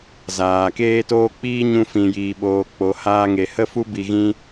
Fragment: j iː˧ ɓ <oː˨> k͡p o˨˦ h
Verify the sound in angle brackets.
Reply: incorrect: oː˧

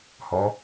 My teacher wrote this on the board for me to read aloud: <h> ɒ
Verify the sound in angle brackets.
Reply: correct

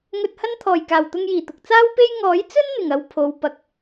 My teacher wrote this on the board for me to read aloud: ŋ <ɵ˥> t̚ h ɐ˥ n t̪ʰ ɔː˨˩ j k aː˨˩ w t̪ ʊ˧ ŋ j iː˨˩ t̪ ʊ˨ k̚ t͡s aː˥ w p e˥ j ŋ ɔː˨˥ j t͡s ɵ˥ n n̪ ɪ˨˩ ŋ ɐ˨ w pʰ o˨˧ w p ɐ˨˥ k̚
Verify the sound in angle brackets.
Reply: incorrect: ɵ˧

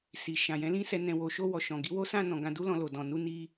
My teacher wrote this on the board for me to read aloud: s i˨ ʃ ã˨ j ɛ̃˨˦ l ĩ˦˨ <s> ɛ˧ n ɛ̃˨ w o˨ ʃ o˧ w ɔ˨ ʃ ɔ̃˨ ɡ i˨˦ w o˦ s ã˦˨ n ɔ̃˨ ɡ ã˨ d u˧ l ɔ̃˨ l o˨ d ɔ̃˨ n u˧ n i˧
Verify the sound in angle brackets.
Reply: correct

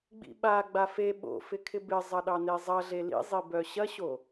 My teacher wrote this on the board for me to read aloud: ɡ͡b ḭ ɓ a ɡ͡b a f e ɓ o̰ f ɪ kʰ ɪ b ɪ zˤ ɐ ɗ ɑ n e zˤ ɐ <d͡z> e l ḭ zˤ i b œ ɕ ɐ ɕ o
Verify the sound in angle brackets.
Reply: incorrect: ɮ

